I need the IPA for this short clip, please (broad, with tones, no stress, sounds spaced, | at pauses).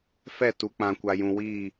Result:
f ɛ˦˨ t u˨ k͡p ã˨ kʷ a˨ j ũ˨ w iː˦˨